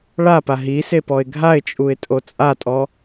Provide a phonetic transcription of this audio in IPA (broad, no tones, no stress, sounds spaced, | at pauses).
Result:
ɭ a p a ɦ i s e p ɔ ɪ̯ ɡʱ a ɪ̯ t͡ʃʼ u ɪ̯ tʼ o t͡sʼ a tʼ ɔ